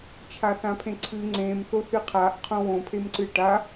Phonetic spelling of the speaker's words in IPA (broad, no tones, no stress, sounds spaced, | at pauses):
t͡ʃʰ a θ ã pʰ ẽ ǀʰ ɨ ŋ͡ǀ ẽ m θ o θ ɨ qʰ a ʔ qʰ õ w õ pʰ e m ǀ ɨ ʈ a